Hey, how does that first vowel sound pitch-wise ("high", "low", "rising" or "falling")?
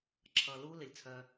low